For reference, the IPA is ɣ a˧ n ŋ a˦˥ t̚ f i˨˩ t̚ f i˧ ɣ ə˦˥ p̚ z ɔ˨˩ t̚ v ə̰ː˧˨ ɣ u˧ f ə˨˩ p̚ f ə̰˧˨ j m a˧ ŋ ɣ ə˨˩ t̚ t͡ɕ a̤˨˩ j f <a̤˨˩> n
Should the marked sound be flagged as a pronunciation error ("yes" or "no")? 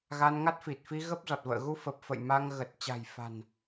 no